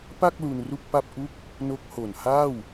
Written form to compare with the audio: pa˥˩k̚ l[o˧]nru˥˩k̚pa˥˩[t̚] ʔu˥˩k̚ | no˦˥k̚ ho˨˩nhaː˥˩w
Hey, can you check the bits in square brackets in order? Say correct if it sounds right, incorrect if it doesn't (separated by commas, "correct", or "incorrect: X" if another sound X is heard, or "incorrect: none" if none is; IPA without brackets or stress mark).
incorrect: u˧, incorrect: p̚